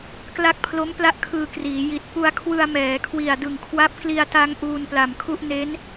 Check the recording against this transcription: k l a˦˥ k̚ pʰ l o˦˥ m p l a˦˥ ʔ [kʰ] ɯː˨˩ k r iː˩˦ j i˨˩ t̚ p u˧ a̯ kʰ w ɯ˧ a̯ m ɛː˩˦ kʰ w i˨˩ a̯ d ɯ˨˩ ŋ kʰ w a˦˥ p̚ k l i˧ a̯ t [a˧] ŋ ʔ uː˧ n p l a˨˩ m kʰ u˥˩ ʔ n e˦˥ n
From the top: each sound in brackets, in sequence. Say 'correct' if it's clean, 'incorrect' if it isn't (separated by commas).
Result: correct, correct